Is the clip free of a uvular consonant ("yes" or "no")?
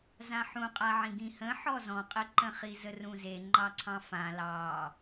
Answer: no